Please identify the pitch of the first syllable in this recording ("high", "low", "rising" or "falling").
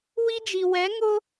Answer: high